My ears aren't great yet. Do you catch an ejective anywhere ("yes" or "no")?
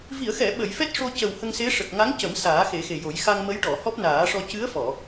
no